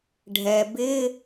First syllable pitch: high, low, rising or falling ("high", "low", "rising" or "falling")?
low